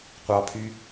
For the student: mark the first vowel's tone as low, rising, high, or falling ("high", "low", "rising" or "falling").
high